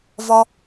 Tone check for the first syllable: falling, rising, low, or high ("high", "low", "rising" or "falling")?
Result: high